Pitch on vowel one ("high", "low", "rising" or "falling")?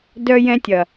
high